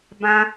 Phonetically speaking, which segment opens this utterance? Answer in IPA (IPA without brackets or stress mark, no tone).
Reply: b